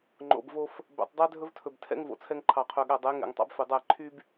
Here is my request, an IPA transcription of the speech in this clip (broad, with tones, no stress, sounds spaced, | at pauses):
ŋ͡ǃ o̰˨ b v o˦ f | b æ̰˨ tˤ dˤ æ˦ dʱ ɵ˦ v tʰ ɵ˨ b tʰ ɛ̰˦ ŋ v o̰˨ t͡sʰ ɛ˦ ŋ ǃʰ ɑ˨ qʰ ø˨ ɠ æ˨ dˤ e˨˦ ŋ ɛ̰˨ ŋ tˤ ɑ̰˦ b f e˨ dˤ æ˦˨ ǃʰ y˦ b